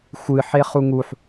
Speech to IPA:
xʷ ɨ ħ e χ u ŋ u ħ

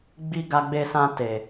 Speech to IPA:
ɡ͡b i˧ ɡ a˧ ɡ͡b e˧ s ã˧ t e˨

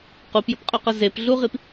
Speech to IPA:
q u p j ɵ p qʼ ɵ q ə z e p ɮ u ʁ i p

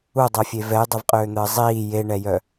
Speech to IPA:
u dˤ ɛ fʲ e v ɛ j dˤ ɛ v qʼ øː n̪ əː zˤ iː j e ɳ ɛ j œ

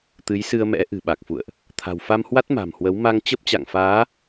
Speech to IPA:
t̪ ɨ˨˦ j s ɨ˧ ə̯ m ɛ̰˧˥ ʔ ɨ̤˨˩ ɓ a˨˩ k̚ f ṵ˧˨ ə̯ ʔ | t̪ʰ a̤˨˩ w f a˧ m h w a˦˥ t̚ m a̤˨˩ m h w ə˨˦ w m a˧ ŋ t͡ɕ ə˦˥ p̚ t͡ɕ a̰˧˨ ŋ f aː˨˦

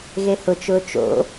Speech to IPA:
ɣ e h ʊ t͡ʃ ʊː t͡ʃ o̰

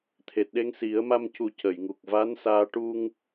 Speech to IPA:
t̪ʰ e˨˩ t̚ ɗ e˧ ŋ s i˨˩˦ ə̯ m a˧ m c u˨˩˦ c ə˨˩˨ j ŋ u˨˩ k̚ v aː˧˥ n s aː˧ ʈ u˧ ŋ

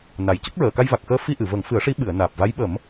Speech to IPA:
n a˨˩ j c ə˦˥ k̚ ɹ əː˨˩˨ k a˧ j v a˨˩ k̚ x əː˧ f i˧ ʔ ɨ˨˩˨ v ə˨˩˦ ŋ f ɨ˨˩˦ ə̯ ʂ i˧˥ ɓ ɨ˨˩˨ ə̯ n aː˨˩ p̚ v a˧˥ j ɓ ə˨˩˦ m

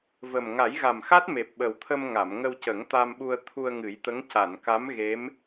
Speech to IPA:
v ə˨˩ m ŋ a˨˩˦ j ɣ a˨˩ m x a˦˥ t̚ m e˨˩ p̚ ɓ ə˨˩ w t̪ʰ ə˧ m ŋ a˨˩˨ m ŋ ə˧ w c ə˨˩˦ ŋ t̪ a˧ m ɓ u˧ ə̯ t̪ʰ u˧ ə̯ ŋ ɨ˨˩˦ j t̪ ə˧˥ ŋ c a˨˩˨ n k a˧˥ m ɣ e˧˥ m

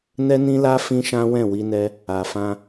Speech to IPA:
n ɛ˦ n ĩ˦ l a˦ f ĩ˦ ʃ ã˦ w ɛ̃˦˨ w i˧ n ɛ˧ | a˨ f ã˧

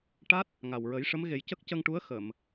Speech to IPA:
ʈ a˦˥ t̚ | ŋ a˨˩ w ɹ ə˨˩˦ j ʂ ə˧˥ m ɣ e˨˩˦ j c ə˦˥ k̚ c ə˧ ŋ ʈ u˧˥ ə̯ x ə˨˩˨ m

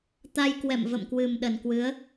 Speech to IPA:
t̪ a˧ j k w ɛ̰˧˨ m v ə̰˧˨ m k w ɨ˨˩ m ɗ ə˨˩ n k w ɨ˨˦ ə̯

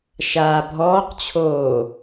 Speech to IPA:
ʃ aː bʱ ɔː q t͡ɕʰ oː

